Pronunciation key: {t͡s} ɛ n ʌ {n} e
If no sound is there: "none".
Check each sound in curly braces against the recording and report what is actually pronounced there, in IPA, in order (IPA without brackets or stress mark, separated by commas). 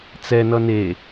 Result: t͡s, n